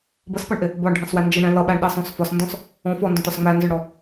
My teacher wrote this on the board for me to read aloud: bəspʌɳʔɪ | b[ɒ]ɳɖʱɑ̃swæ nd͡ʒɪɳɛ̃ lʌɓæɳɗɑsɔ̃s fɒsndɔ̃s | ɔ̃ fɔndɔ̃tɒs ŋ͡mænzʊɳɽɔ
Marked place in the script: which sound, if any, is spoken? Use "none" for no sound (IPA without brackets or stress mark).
ɒ